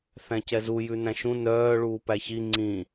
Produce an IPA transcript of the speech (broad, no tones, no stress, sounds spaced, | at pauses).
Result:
θ æ̃ c ɛ z u j ʉ n æ̃ ʃ ũ n œː ɭ uː p æ ç i ŋ͡ǀ ĩ